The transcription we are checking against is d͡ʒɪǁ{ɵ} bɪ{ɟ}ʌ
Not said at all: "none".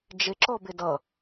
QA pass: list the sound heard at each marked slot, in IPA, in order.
ɔ, d

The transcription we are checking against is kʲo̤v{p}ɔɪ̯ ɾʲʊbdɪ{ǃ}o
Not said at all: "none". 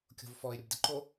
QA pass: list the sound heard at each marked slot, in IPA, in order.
f, ǃ

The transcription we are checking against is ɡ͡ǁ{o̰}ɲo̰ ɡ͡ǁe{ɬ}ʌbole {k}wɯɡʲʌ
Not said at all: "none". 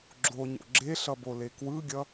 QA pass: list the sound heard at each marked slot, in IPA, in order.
o, ɬ, k

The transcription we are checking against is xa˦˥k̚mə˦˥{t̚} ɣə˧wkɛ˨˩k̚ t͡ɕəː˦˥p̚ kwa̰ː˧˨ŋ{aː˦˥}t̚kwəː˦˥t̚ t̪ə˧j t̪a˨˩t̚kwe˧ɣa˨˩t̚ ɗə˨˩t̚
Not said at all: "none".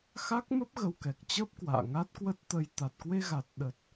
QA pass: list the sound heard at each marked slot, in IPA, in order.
p̚, a˦˥

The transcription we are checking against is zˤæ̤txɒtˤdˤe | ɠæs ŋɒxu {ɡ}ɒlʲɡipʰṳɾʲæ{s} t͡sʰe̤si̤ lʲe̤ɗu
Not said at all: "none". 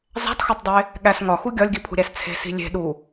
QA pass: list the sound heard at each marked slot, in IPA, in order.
ɡʲ, s

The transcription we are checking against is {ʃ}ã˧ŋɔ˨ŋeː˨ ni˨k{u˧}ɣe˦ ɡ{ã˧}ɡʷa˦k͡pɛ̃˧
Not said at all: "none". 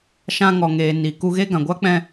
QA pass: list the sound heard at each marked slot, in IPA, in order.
ʃ, u˧, ã˨

